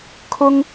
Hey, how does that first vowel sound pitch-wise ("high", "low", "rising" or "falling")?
high